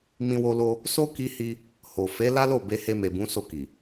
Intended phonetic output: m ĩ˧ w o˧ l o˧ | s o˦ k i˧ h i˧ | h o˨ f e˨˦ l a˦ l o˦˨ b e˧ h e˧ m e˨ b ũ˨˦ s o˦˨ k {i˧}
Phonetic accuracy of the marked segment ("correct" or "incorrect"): incorrect